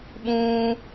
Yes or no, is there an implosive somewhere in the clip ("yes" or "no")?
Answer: yes